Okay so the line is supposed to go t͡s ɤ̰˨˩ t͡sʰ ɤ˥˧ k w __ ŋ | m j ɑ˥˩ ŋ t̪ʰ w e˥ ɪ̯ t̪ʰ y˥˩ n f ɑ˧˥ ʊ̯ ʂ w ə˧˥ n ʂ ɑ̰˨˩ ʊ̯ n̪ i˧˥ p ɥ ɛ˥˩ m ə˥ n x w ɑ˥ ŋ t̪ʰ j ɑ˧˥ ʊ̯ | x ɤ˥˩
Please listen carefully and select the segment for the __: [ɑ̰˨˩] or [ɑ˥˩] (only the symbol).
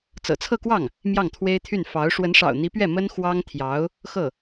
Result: ɑ˥˩